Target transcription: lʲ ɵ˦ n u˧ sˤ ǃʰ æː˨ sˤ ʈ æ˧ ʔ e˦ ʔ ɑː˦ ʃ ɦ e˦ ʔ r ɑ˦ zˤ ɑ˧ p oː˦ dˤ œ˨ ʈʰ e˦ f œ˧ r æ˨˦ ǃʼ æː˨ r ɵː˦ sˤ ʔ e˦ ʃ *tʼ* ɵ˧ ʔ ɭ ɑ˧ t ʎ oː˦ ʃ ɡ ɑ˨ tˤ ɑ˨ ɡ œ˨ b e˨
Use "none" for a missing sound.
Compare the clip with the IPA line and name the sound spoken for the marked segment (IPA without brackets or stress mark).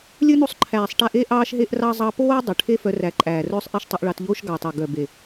tˤ